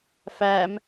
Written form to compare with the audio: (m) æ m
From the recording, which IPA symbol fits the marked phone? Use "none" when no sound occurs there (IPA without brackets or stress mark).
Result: f